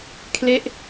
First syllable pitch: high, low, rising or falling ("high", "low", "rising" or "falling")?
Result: falling